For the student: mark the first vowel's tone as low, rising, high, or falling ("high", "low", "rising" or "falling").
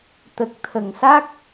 low